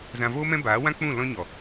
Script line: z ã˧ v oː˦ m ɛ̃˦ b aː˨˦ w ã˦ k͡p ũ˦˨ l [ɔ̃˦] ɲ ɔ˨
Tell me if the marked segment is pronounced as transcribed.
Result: yes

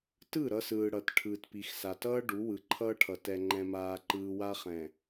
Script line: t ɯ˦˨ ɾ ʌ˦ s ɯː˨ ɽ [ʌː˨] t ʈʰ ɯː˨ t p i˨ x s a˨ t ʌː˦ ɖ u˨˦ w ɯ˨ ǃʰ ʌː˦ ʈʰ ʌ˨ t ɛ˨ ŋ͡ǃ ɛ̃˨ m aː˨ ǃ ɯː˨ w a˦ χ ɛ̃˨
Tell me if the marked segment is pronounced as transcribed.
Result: no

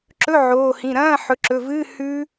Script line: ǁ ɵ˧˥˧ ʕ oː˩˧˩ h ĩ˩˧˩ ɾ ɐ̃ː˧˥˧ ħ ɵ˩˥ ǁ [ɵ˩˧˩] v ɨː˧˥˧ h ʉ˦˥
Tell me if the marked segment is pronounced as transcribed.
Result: yes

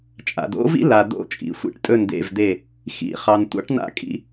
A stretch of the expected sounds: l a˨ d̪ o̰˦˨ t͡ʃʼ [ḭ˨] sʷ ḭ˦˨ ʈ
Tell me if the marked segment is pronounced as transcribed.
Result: yes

